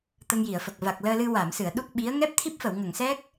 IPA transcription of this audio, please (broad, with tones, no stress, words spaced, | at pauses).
t̪ə˧ŋji˨˩˨ə̯fə˨˩k̚ va˨˩k̚ləː˧lɨ˧ wa˨˩˨msɨ˨˩˨ə̯ ɗu˦˥k̚ɓi˧˥ə̯ ŋɛ˦˥p̚t̪ʰi˦˥p̚fə˨˩˨w ŋə˨˩˨ŋsɛ˦˥k̚